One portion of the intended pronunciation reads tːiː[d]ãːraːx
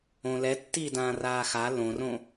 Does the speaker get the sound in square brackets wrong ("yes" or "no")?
no